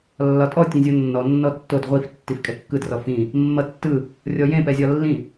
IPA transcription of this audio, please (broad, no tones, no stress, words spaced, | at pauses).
lːɒtʼɔ tʲẽzʲonːɔ nːɔtːod ʁʷif tːifkʼɛkːɯd rɔfĩ | mːʌtːɯ | rʲɔjẽ pɛzʲɒlːĩ